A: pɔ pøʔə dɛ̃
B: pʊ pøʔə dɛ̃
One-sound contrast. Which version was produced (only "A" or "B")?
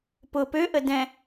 B